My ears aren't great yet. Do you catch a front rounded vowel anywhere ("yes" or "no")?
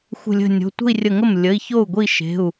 no